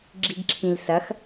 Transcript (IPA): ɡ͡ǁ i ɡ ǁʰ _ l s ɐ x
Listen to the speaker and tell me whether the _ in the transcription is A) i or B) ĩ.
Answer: B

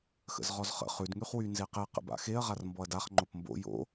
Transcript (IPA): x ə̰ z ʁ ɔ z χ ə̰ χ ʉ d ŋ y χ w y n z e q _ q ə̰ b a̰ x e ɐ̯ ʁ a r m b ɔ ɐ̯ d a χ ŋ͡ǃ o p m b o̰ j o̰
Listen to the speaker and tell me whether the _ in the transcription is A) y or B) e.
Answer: B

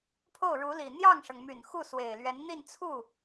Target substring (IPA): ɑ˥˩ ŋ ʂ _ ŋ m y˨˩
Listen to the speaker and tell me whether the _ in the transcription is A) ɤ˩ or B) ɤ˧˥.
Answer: A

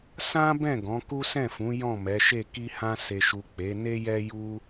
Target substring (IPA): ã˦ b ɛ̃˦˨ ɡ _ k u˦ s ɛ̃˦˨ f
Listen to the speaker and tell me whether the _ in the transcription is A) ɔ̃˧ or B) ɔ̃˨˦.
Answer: B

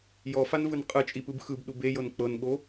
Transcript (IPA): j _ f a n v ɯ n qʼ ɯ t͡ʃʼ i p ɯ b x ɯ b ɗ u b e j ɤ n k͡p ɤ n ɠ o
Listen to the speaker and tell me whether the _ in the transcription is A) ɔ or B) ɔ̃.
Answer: A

